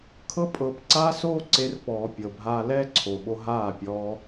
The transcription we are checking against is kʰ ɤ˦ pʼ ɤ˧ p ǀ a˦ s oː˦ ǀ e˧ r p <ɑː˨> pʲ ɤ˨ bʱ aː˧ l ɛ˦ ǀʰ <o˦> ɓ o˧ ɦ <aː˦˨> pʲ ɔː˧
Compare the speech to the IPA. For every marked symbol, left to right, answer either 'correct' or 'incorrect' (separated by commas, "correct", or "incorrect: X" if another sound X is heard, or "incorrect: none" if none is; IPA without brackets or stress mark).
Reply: incorrect: ɔː˨, incorrect: o˨, correct